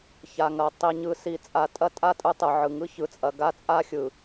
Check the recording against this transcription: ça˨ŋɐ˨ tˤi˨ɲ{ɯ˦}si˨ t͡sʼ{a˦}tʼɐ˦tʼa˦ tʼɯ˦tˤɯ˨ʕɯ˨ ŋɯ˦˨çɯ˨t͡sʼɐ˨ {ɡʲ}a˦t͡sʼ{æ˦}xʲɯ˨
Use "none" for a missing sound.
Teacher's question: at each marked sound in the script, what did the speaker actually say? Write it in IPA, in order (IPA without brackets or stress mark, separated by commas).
ɯ˨, a˨, ɡ, a˦